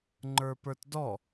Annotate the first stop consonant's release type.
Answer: click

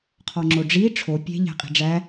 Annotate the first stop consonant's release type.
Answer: aspirated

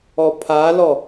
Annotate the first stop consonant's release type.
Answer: aspirated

